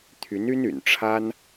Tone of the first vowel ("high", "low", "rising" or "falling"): rising